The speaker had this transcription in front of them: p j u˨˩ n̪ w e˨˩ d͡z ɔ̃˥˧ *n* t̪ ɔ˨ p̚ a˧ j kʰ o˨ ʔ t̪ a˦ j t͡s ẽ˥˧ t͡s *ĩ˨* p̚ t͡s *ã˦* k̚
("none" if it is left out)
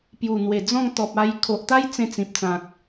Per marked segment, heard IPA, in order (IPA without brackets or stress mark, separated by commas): ŋ, ĩ˨, ã˨